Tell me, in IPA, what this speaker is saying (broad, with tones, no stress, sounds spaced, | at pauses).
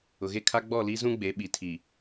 ʊ˨ ɣ e˦ kʰ a˦ ɡ͡b ɔ˦˨ l i˦ z ũ˦ ɡ͡b e˨˦ ɓ i˨ tʰ i˨